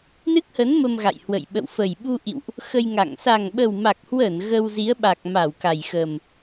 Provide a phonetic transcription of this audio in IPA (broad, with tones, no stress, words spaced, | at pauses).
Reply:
nɨ˦˥k̚hə˨˦n mə˧mɣa̰˧˨jhwə̰˧˨j ɓə̰˧˨wfə˨˩jɓu˧ʔḭ˧˨wʔ | xə˧jŋa̰˧˨ŋ sa˨˩ŋɓə˨˩wma˨˩k̚hwəː˧˩n ɣə˧w zi˨˦ə̯ɓa˨˩k̚ma˧˩w ka˨˩jxə˨˩m